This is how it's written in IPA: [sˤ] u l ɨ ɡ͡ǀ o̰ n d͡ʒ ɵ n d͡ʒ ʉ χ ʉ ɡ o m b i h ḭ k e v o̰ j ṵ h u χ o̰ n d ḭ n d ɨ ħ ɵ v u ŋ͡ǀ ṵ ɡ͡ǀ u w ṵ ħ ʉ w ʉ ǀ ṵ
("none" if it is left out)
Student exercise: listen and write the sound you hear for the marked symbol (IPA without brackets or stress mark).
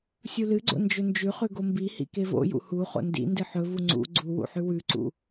sʲ